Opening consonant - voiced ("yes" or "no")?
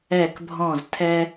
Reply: no